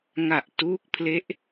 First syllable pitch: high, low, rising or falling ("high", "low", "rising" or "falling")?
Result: low